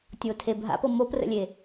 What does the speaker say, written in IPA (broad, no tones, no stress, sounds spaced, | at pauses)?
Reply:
tʲ o tʰ e bʱ a̰ p ɤ m o p r ə̰ lʲ e